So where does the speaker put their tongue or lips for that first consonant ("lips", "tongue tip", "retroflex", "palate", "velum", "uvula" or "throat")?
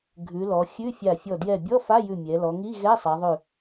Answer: velum